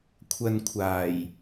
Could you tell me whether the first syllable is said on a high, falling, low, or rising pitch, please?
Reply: low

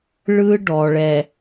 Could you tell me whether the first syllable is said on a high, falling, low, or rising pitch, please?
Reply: high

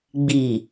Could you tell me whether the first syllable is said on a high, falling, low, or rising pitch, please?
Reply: low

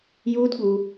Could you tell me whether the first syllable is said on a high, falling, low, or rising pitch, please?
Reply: high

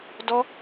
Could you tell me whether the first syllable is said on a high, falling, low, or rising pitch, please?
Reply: high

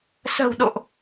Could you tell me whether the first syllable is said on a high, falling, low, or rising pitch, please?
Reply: low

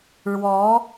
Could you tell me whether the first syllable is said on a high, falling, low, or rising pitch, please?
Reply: rising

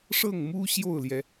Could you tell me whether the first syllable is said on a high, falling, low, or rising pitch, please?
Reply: falling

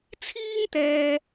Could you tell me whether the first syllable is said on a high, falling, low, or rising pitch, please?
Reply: high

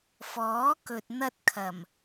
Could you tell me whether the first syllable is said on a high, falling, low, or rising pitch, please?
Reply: rising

